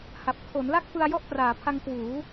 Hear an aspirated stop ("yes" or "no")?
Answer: yes